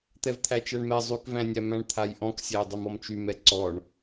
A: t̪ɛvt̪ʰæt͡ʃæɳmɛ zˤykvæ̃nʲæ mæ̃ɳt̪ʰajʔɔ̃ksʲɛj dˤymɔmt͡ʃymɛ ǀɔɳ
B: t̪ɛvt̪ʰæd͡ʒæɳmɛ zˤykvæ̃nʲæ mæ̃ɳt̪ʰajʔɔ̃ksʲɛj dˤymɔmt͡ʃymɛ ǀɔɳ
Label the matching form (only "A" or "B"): A